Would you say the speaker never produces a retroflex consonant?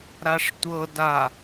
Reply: no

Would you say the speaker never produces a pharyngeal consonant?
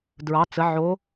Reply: no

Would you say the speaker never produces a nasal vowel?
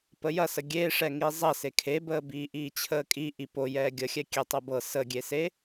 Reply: yes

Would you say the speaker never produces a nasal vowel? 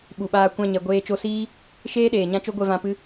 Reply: no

